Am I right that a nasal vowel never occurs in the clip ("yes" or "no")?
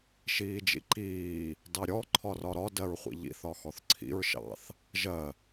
yes